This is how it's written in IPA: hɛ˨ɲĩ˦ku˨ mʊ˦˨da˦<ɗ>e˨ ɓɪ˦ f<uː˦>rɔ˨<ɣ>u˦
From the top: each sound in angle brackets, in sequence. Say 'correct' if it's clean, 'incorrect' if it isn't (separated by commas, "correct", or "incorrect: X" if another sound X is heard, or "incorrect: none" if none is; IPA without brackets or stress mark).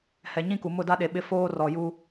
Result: correct, incorrect: oː˦, incorrect: j